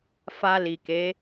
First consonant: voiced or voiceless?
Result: voiceless